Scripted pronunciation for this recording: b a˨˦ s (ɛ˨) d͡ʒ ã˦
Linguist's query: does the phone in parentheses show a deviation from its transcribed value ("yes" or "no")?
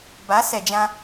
no